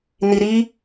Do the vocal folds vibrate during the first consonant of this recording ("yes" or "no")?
yes